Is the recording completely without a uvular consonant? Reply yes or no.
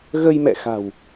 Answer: yes